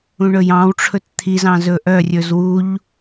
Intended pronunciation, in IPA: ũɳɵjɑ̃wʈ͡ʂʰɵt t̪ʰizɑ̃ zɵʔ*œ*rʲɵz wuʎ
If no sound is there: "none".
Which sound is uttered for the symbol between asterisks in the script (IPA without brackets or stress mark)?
œ